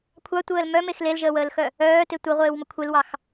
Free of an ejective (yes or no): yes